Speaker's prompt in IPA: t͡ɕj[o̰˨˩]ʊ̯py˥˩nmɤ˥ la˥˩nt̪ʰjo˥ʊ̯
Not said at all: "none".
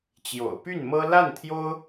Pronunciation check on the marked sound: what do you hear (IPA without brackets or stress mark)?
o̰˨˩